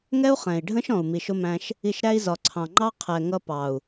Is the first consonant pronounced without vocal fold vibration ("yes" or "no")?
no